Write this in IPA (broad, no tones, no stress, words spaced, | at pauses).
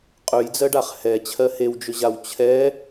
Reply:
qʼɵjd͡zɜɖaχ hɛ t͡ɕʰɜhewd͡ʒɵʑaw t͡ɕʰɛ